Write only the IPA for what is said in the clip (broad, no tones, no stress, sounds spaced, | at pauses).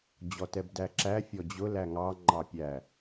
d͡ʑ ɔ t ɛ b d æ ǁ æ fʲ ɔ d͡ʑ ʊ l æ ŋ ɑ ŋ͡ǃ ɑ pʲ æ